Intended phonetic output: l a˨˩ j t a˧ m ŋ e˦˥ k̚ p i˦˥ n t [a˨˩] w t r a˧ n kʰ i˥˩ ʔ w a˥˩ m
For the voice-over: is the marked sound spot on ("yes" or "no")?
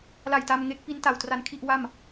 yes